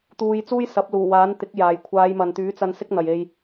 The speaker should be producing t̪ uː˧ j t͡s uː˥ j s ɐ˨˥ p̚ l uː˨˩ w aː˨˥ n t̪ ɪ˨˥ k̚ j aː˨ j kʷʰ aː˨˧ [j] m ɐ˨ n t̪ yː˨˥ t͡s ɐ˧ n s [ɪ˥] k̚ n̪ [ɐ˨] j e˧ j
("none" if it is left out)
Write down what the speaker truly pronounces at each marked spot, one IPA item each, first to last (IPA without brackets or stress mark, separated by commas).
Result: j, ɪ˥, ɐ˨